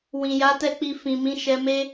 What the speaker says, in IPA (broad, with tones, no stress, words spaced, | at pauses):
wĩ˨ja˨˦tɛ˦˨k͡pi˧ fĩ˨mĩ˨˦ʃɛ˧me˦